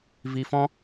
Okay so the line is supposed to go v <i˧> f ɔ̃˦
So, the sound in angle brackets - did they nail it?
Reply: yes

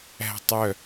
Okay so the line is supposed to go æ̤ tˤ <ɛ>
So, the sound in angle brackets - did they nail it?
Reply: no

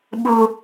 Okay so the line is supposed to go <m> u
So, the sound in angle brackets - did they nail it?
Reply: no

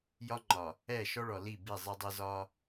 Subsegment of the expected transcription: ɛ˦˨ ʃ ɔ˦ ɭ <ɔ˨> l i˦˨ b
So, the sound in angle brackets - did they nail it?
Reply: yes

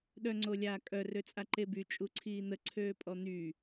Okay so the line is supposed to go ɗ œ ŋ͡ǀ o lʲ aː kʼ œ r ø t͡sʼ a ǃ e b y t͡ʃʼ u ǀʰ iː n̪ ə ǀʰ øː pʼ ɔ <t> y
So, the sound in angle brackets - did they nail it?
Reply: no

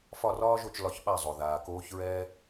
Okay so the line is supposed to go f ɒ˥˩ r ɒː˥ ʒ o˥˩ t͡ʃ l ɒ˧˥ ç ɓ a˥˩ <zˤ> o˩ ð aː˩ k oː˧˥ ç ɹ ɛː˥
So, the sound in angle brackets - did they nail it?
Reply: yes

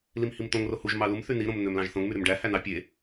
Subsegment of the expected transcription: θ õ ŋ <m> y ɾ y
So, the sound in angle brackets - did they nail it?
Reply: yes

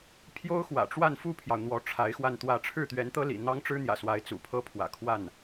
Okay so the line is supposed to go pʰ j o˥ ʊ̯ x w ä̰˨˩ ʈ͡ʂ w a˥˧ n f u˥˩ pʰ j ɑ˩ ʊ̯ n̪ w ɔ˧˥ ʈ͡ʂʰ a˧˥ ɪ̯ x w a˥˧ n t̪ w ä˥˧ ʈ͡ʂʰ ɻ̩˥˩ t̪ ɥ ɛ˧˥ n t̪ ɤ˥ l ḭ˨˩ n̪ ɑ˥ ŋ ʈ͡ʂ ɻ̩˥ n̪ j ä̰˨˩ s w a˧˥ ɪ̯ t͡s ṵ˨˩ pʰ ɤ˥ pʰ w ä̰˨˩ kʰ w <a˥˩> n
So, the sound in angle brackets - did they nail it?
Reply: yes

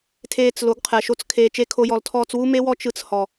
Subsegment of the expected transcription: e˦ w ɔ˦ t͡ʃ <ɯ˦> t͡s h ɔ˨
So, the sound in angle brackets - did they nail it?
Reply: yes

